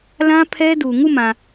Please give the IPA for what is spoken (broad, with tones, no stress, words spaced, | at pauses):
lã˦pʰɛ˦du˨ ŋu˦˨mã˨